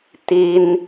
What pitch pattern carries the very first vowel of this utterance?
high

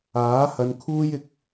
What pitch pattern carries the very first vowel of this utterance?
rising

